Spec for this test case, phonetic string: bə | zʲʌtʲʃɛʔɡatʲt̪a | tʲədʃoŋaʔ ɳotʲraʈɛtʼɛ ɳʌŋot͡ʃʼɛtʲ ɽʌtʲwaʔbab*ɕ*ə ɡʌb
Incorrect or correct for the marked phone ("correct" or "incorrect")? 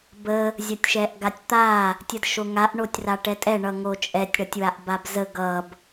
incorrect